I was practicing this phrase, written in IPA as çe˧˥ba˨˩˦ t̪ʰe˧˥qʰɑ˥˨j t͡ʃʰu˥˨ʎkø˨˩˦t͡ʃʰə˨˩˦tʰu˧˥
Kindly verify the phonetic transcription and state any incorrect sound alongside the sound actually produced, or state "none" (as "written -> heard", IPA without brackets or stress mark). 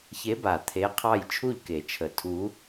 ø˨˩˦ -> e˨˩˦